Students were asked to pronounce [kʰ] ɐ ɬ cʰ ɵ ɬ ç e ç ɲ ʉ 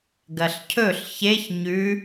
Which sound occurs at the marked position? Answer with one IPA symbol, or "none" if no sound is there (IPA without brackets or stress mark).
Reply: ɡ